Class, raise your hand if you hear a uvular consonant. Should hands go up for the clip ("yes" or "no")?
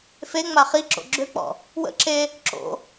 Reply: yes